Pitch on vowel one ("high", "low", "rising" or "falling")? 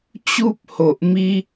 high